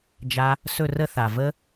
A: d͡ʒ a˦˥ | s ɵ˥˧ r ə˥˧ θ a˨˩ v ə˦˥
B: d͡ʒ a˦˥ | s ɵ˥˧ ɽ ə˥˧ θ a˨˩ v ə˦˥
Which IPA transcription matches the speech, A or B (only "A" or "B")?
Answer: A